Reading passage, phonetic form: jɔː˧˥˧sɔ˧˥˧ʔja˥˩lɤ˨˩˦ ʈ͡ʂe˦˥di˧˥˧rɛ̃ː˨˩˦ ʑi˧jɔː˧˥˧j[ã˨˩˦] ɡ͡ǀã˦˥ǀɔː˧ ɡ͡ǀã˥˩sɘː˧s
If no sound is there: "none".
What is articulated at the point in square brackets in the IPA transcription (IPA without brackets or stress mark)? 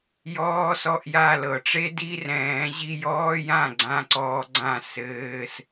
ã˥˩